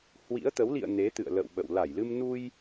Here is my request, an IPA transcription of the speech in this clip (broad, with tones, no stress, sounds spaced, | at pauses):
h w ḭ˧˥ ə̯ t̪ ə˨˦ w l ḭ˧˨ ə̯ n e˨˦ t̪ ɨ̰˧˨ ə̯ l ə̰˧˨ w ɓ ə̰˧˨ w l a˧˩ j l ɨ˧ m n u˧ j